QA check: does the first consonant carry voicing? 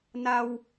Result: yes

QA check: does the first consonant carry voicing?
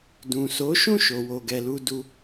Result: yes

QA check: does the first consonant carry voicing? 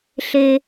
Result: no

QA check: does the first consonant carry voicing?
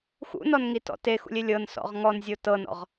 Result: no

